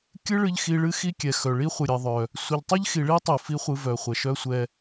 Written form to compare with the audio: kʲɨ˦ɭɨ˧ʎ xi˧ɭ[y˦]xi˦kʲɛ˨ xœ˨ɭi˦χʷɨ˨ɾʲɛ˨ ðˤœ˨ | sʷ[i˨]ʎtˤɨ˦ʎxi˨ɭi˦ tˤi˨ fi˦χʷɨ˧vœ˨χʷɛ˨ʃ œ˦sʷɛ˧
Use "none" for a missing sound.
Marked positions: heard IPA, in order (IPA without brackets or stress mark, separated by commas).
ɨ˦, ɨ˨